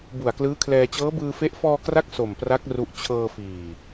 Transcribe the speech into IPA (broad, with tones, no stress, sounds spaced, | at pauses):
b u˨˩ a̯ k l ɯː˦˥ kʰ l ɛː˧ t͡ɕ ɤː˦˥ b ɯː˧ f e˦˥ ʔ f ɔː˧ k r a˦˥ k̚ s o˨˩ m p r a˦˥ k̚ r u˥˩ ʔ t͡ɕʰ ɤː˧ f iː˨˩